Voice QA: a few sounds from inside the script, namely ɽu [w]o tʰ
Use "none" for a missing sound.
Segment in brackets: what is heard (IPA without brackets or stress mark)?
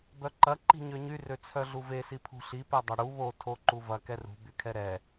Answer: β